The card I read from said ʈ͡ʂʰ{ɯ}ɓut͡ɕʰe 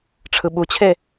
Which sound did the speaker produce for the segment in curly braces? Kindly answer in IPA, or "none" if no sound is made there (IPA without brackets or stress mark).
ɯ